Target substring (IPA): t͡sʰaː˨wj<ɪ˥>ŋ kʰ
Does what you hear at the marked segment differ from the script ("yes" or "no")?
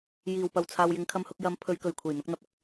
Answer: yes